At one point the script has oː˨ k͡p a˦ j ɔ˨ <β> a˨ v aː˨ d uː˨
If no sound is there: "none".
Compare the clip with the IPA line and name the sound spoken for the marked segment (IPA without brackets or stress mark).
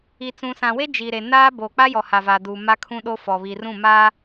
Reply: h